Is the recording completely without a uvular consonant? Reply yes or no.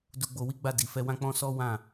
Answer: yes